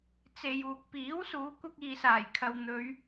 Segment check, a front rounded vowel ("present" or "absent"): absent